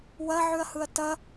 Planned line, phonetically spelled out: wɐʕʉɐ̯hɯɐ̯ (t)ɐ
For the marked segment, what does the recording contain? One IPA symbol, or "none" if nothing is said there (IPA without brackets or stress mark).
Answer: t